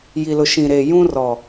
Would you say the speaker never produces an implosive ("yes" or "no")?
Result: yes